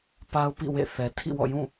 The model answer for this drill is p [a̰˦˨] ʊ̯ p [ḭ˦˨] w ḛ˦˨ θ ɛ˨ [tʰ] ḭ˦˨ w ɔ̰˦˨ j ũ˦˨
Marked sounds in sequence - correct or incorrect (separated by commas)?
incorrect, correct, correct